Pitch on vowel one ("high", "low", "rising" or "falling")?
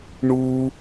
high